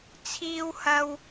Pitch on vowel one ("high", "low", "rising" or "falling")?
high